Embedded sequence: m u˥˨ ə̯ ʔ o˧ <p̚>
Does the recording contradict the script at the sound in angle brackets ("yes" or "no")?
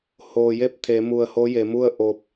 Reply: no